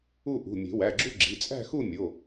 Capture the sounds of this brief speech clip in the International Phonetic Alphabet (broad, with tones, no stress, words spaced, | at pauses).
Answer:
u˥˧ʔṳ˩˧˩ mʲe̤˨˩˦wæ˩˧˩ɡ͡ǁu˥˧ ɡ͡ǁi˩˧˩t͡sʼæ̤˥˧xu˥˧ mʲo˩˧˩